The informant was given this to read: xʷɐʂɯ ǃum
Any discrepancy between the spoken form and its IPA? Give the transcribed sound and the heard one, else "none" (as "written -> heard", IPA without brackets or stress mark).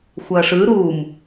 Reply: ǃ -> ɾ